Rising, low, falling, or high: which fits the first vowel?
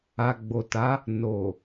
low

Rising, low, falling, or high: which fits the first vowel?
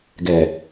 low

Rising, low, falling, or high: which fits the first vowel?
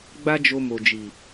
high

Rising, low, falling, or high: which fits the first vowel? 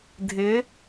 rising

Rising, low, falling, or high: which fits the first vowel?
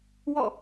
falling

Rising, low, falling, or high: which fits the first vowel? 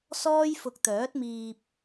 high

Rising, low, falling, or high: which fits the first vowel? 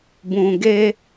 low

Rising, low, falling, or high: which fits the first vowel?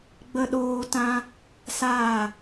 high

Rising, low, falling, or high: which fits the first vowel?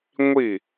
falling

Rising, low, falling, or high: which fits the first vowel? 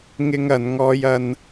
high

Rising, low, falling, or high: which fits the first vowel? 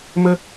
high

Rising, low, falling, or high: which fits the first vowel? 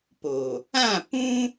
low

